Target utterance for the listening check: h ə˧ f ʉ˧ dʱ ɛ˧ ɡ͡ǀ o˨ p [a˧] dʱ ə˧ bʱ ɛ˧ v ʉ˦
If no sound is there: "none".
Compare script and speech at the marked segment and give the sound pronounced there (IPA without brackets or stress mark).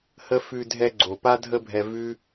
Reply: a˧